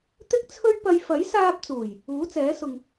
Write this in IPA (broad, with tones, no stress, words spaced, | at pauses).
t̪ɪ˥k̚ t͡sʰɵ˥ɥ pɐ˧j fɐ˨˥jsaː˧p̚t͡suː˨˩j | uː˨˥t͡sɛː˨˥ sʊ˧ŋ